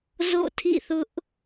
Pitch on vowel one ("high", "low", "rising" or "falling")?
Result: falling